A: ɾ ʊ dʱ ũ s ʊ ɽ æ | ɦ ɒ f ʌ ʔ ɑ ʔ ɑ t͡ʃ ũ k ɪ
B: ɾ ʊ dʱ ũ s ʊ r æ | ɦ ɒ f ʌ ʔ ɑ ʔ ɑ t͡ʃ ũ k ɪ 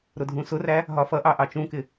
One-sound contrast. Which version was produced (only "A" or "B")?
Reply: B